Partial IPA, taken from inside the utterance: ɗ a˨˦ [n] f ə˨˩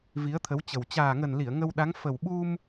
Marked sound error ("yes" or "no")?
yes